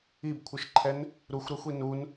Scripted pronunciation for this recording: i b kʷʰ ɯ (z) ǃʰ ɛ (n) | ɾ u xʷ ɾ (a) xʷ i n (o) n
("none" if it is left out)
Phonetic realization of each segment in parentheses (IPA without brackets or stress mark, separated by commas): ʃ, n, a, u